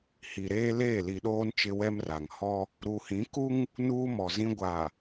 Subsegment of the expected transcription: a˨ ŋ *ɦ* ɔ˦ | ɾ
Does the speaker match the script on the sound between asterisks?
no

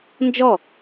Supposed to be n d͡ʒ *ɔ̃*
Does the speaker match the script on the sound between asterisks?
no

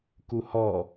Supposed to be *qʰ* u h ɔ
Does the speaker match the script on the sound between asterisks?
no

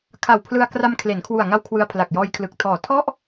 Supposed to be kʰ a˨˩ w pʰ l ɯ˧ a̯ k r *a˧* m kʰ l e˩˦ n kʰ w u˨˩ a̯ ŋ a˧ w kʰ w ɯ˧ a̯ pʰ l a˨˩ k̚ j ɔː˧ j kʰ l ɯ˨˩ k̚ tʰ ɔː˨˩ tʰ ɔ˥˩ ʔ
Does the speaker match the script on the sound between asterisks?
yes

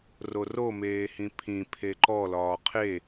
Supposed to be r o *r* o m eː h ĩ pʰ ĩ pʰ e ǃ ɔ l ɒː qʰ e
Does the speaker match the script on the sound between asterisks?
yes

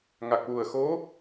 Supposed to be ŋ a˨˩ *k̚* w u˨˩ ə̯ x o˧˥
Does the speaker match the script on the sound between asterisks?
yes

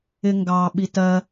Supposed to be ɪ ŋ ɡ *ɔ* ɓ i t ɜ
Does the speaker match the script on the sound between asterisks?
no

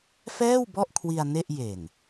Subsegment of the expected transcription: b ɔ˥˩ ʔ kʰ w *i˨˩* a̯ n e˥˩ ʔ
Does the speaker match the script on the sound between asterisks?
no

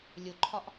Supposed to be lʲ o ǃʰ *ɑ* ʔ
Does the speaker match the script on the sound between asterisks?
no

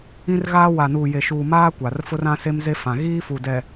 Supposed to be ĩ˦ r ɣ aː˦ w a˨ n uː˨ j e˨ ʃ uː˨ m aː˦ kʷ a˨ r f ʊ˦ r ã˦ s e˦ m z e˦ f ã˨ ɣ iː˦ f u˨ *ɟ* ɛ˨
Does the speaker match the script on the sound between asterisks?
no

